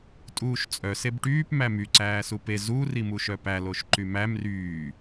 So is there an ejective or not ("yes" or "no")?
yes